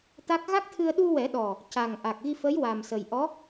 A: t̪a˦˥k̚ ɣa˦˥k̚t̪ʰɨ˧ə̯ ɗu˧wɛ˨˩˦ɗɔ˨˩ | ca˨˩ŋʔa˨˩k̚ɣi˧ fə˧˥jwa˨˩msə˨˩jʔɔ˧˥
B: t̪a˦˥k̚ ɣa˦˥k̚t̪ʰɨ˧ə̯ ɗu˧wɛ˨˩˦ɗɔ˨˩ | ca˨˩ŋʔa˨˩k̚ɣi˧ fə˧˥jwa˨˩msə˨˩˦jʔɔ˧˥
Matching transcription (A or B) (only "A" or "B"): A